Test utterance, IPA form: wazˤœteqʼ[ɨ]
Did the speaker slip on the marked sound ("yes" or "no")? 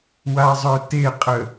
yes